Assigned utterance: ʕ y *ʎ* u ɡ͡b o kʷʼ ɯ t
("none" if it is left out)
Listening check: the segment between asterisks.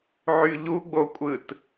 ʎ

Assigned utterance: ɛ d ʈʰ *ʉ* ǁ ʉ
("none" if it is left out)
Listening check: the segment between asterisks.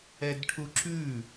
u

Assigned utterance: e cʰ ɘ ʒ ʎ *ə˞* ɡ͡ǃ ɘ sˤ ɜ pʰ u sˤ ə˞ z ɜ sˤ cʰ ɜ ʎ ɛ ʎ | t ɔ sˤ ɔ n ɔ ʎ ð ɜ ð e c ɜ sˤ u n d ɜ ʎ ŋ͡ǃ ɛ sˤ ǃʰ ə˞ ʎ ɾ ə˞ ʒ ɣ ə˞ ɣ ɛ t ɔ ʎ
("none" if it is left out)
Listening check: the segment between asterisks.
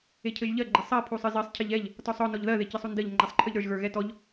ɜ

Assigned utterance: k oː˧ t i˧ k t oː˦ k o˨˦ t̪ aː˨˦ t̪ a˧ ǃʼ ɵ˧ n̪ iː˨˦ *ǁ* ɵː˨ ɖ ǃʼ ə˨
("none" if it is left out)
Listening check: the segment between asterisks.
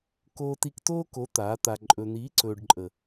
ǀ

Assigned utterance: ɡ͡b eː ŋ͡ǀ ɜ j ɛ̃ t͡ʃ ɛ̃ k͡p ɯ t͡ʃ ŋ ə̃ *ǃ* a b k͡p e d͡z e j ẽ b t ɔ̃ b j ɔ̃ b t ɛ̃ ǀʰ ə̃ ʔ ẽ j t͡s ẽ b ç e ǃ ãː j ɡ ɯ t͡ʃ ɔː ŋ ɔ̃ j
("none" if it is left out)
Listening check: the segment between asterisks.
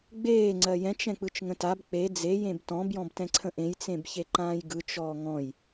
t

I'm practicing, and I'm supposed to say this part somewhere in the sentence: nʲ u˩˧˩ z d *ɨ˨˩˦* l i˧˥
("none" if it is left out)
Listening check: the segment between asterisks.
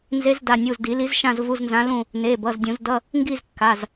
i˨˩˦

